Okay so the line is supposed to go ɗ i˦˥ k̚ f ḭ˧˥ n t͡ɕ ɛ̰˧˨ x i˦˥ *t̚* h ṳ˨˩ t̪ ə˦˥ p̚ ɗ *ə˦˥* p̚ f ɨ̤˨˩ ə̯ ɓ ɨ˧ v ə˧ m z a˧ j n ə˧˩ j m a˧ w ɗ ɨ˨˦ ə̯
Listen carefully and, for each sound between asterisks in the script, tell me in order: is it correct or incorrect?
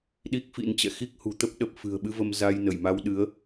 incorrect: k̚, incorrect: ə˨˩

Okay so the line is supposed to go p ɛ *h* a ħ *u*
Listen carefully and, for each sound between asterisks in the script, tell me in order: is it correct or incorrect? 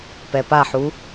incorrect: p, correct

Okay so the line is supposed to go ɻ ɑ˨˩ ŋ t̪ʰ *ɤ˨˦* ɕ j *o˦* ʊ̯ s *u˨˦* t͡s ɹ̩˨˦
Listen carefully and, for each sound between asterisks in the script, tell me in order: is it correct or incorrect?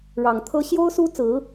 incorrect: ɤ˦, correct, incorrect: u˦

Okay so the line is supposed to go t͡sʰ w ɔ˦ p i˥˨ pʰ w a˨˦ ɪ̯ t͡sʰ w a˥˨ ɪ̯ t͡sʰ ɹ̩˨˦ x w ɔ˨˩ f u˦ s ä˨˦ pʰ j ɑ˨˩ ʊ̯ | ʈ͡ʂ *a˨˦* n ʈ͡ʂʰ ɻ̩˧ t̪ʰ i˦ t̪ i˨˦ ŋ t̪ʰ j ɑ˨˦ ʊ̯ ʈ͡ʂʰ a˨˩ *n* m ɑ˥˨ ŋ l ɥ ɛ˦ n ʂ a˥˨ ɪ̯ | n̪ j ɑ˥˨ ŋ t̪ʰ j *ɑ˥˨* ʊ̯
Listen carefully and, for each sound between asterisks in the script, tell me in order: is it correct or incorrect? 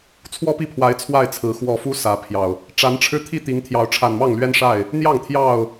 correct, correct, correct

